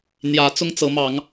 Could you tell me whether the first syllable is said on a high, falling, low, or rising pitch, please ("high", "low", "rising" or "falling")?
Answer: rising